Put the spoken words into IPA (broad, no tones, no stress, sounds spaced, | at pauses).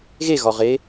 ɣ e ɣ ɒ ʁ e